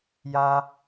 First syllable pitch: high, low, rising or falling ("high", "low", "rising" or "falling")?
high